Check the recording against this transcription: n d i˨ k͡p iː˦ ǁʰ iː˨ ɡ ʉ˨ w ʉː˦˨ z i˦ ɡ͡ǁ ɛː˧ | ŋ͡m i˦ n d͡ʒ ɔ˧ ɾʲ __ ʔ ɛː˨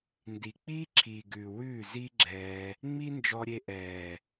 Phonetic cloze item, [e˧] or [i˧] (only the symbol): e˧